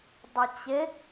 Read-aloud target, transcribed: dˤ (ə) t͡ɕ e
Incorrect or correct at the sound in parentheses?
correct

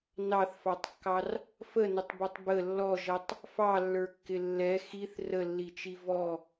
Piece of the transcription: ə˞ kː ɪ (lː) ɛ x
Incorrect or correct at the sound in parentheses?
correct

